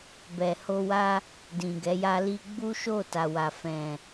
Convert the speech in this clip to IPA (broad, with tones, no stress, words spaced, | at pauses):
bɛ˨ho˧wa˦ | dĩ˨ɡɛ˨˦ja˦li˦ ɡ͡bu˦ʃo˦˨ta˨wa˨ fɛ̃˨